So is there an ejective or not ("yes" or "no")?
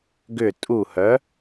yes